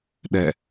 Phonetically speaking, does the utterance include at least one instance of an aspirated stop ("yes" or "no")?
no